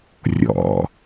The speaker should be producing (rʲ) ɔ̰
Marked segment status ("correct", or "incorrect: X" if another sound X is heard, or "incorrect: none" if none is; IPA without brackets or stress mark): correct